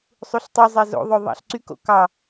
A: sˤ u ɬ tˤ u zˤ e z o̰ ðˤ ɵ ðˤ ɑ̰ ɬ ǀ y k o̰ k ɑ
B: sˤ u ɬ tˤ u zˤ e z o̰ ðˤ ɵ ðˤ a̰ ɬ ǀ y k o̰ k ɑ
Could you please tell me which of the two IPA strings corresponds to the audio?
A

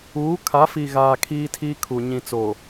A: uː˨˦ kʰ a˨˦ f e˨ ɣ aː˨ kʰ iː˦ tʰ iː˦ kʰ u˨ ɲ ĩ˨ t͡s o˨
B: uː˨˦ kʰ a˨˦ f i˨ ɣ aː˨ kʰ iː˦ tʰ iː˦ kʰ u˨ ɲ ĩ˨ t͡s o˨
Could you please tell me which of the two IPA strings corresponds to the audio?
B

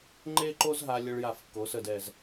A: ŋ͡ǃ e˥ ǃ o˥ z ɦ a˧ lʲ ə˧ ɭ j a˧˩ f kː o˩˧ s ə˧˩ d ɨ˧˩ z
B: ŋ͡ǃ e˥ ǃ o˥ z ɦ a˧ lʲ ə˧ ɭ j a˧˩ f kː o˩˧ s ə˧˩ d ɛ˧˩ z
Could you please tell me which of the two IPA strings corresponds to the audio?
B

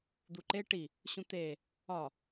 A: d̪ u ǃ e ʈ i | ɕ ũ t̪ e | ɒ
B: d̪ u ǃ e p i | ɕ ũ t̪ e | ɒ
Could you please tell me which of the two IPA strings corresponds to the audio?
A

